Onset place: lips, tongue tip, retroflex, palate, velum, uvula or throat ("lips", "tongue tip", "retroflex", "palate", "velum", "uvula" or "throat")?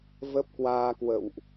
lips